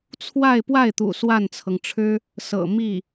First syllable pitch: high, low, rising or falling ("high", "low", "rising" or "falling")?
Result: falling